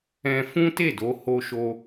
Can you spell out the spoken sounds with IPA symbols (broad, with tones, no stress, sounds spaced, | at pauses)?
ɛ̃˧ f ũ˦ t e˦˨ d o˧ h o˦ ʃ o˦